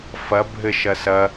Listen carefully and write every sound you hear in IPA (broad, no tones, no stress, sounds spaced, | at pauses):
f ɐ bʱ ɘ ʃ ɐ s ɐ